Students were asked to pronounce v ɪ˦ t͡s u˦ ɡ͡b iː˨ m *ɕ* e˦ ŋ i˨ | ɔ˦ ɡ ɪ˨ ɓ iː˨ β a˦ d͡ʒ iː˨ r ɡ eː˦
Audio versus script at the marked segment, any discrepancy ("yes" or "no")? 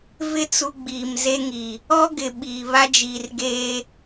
yes